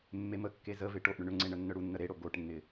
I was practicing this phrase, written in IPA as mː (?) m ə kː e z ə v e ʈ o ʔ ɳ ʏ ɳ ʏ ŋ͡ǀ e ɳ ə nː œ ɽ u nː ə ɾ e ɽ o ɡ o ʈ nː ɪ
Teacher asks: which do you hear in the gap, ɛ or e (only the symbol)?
e